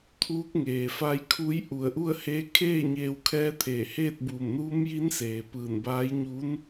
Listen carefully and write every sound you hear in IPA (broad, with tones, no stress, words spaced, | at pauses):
t̪ʰuː˧˥k̚ŋeː˩fa˧˥jkʰu˧˥j ʔu˧˩ə̯ʔu˥˨ə̯he˧˥ kʰeː˥˨ɲeː˧wkʰɛː˧˥t̪ʰeː˧˩ heː˥˨t̚buː˧˩mnuː˧˥mji˧˥n seː˩pɯː˧˩nbaː˧˥j ɲuː˧˥n